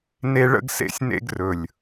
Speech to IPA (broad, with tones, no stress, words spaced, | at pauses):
ne˦ɭə̰˦ɡ sḛ˧sʲnḛ˧ɡrɵ˨lʲ